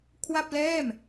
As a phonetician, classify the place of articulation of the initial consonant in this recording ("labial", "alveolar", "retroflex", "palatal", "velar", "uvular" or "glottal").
velar